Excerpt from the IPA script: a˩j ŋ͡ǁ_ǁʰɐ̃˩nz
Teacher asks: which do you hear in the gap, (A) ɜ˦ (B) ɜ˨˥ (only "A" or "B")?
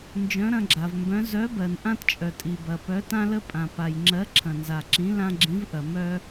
B